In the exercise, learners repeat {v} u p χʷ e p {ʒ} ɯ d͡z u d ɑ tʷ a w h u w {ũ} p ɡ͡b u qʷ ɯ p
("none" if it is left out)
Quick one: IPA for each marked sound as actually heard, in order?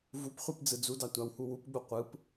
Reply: v, d͡z, u

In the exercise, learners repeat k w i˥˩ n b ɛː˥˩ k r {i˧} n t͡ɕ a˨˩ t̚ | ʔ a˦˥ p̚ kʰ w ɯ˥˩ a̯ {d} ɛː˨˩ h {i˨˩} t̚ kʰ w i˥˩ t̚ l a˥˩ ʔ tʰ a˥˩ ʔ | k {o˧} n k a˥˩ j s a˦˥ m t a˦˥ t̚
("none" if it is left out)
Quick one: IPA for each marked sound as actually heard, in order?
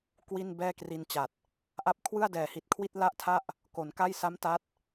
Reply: i˧, d, i˨˩, o˩˦

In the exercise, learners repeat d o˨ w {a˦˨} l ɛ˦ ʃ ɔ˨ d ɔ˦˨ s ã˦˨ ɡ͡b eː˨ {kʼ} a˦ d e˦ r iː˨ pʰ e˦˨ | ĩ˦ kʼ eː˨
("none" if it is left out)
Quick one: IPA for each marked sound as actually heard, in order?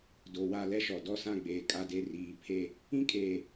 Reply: a˦˨, kʼ

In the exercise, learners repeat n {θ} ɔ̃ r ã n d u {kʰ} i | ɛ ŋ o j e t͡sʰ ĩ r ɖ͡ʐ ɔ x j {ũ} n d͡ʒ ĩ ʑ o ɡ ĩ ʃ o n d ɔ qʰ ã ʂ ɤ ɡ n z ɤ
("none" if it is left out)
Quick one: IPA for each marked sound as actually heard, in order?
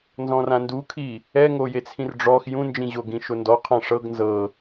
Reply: z, kʰ, ũ

